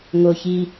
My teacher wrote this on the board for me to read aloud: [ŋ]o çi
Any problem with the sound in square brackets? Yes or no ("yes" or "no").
no